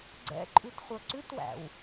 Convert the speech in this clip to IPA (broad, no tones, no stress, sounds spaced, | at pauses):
ɡ͡ǀ ɛ̰ ǃʼ ʉ t χʷ œ ǀ ʉ t w æ̰ w